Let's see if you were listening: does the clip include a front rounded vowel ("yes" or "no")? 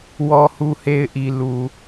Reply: no